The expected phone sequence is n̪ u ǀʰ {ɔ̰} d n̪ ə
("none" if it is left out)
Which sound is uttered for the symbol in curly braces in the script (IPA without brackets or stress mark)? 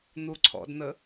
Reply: ɔ̰